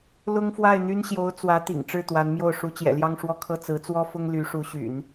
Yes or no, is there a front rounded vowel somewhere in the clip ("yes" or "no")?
yes